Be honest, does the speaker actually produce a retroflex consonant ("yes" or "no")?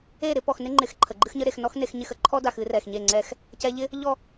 no